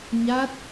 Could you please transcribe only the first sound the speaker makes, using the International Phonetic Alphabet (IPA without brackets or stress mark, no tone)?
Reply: ɲ